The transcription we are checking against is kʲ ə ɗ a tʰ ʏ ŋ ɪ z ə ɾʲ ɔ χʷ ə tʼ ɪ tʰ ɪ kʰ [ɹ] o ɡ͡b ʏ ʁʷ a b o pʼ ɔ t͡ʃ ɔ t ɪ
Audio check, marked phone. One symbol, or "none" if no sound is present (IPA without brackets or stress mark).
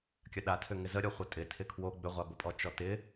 w